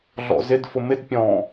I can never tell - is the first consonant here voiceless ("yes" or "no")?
no